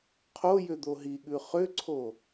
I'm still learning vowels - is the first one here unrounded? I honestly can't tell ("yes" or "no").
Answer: no